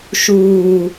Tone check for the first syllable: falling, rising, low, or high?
low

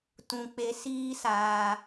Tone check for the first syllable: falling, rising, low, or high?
high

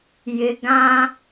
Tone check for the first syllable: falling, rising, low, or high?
high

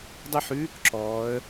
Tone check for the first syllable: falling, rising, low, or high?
falling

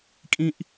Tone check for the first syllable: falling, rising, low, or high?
high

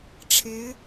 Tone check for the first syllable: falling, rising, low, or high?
rising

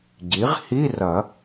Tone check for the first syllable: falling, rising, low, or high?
rising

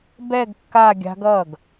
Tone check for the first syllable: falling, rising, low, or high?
falling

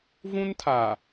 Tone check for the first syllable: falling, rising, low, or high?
high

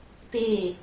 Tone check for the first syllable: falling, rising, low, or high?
falling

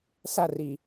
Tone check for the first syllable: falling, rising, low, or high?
falling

